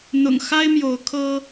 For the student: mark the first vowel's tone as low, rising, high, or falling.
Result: low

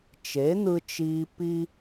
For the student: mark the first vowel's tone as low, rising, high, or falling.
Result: rising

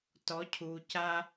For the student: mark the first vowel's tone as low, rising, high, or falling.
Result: rising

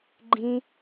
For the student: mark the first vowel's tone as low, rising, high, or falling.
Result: high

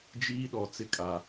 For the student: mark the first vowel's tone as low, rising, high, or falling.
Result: high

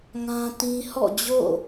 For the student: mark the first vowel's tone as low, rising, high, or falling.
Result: high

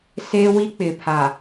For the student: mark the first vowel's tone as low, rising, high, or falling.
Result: high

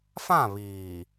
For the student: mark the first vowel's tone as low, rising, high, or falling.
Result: falling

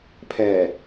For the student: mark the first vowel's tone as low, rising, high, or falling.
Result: low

